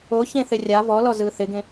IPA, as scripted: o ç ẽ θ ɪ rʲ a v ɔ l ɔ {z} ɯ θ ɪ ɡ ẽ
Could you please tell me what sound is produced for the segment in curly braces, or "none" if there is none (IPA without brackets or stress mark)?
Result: z